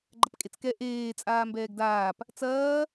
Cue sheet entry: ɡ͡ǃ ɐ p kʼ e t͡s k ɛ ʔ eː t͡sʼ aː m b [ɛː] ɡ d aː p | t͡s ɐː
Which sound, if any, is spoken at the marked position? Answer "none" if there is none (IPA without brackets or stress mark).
ɛː